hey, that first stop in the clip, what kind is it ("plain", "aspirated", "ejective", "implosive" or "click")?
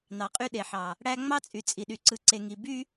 ejective